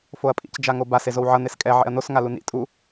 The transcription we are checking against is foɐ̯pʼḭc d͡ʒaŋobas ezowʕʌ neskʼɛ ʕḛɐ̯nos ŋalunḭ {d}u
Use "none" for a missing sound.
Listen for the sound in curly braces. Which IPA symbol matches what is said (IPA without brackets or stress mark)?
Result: tʼ